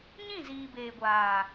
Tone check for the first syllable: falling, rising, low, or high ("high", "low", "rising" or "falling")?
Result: falling